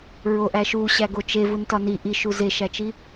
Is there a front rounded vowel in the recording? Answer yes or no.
no